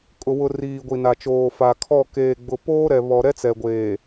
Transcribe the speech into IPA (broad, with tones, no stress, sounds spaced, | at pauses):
kʼ ʊ˨ w ʊ˨ r iː˨ ɡʷ i˨ n a˨ t͡ʃ oː˨ f a˨ kʰ ɔ˦˨ k eː˨ ɡ͡b ʊ˨ p oː˦ ɾ ɛ˨ β ɔ˨ ɾ ɛ˦ t͡s ɛ˨ ɡʷ eː˨